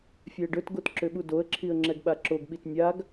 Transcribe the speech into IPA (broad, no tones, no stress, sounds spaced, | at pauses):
fʲ ɛ ə̯ ɖ ɵ t ɡ o t ǁ ʏ ɓ u d o ə̯ ǁʰ i ə̯ ŋ͡ǁ ɛ ɡ ɓ a ǁ o ɡ ɓ i t nʲ a ɡ